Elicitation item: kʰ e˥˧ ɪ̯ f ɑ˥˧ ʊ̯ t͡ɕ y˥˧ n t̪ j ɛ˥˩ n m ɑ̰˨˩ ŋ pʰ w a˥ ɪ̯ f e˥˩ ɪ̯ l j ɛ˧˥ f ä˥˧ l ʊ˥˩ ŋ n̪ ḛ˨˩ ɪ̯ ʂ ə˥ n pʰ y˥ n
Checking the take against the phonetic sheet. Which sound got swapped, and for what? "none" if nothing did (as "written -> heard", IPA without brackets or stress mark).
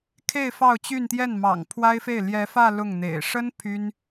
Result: none